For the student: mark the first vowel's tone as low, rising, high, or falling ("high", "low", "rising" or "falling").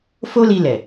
high